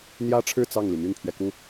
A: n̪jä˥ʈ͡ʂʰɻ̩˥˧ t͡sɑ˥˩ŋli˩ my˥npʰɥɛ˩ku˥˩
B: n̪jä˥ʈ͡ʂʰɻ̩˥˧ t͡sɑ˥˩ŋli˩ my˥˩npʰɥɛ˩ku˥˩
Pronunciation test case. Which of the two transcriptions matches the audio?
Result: B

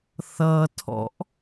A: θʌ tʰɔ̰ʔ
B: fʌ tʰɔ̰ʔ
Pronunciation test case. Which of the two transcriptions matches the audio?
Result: A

